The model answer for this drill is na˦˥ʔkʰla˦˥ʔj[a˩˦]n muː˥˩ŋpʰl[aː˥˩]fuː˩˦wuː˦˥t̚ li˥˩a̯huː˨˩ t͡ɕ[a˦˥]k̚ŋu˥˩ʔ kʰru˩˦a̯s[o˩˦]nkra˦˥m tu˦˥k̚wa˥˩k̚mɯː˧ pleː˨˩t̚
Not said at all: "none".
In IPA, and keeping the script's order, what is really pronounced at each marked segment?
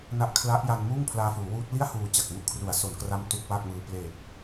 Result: a˧, aː˧, a˨˩, o˩˦

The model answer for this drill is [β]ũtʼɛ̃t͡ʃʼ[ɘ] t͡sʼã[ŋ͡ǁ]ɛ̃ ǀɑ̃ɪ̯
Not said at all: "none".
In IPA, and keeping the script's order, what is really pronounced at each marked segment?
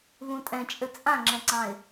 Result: β, ɘ, ŋ͡ǁ

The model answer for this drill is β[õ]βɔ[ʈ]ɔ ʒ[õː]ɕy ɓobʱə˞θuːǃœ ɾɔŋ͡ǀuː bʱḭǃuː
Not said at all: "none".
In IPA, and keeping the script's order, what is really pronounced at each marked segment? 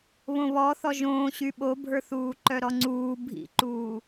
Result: õ, θ, õː

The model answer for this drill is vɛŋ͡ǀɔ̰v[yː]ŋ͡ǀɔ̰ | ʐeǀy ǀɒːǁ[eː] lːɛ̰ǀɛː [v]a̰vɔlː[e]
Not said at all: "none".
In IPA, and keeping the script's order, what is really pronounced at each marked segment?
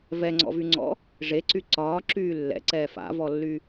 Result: y, yː, f, y

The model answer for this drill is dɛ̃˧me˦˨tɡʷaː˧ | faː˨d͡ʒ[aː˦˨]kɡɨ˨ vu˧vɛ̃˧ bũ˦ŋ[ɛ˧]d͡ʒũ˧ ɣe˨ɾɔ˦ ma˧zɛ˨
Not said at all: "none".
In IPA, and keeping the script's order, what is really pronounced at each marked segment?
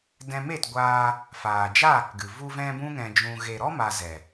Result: aː˦˨, ɛ̃˧

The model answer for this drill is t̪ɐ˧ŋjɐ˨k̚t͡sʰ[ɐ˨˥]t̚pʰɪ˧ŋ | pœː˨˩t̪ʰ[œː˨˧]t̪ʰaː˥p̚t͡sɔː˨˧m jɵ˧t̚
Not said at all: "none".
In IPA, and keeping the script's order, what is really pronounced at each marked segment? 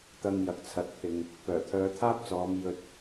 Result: ɐ˧, œː˨˧

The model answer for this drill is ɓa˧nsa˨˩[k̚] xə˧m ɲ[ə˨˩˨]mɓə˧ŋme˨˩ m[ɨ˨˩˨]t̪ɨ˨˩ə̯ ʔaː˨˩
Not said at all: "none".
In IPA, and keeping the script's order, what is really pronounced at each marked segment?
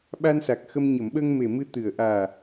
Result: k̚, ə˨˩˨, ɨ˧

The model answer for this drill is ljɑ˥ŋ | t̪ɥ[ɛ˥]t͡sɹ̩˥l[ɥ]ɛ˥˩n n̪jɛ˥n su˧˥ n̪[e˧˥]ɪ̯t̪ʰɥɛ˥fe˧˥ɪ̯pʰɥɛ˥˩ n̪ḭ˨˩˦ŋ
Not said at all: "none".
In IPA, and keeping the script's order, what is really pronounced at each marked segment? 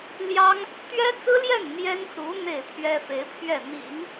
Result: ɛ˥, j, e˥˩

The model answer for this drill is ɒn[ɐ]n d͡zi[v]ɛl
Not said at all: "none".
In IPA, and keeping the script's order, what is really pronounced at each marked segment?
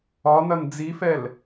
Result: ɐ, f

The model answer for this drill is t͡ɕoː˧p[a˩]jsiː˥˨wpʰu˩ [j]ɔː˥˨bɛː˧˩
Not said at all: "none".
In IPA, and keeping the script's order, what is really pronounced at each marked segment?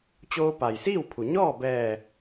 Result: a˩, ɲ

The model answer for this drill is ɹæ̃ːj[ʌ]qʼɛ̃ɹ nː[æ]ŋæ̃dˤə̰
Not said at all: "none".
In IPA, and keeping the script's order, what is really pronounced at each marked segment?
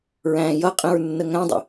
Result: ʌ, ə

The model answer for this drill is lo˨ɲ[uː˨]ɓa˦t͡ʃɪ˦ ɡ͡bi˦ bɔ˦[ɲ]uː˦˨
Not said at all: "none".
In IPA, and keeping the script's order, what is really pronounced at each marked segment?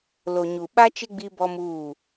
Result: u˨, m

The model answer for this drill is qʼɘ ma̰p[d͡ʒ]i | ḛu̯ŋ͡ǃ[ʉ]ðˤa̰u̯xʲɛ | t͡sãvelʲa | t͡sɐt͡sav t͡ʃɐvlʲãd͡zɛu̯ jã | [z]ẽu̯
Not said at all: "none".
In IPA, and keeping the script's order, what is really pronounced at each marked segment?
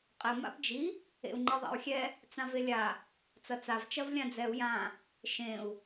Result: d͡ʒ, ɘ, ʃ

